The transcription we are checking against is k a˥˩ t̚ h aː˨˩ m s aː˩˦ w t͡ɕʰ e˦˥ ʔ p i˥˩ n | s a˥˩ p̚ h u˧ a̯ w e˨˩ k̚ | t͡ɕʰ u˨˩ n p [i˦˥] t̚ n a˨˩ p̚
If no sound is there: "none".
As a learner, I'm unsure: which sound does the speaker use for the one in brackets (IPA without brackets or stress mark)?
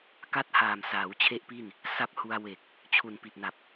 i˨˩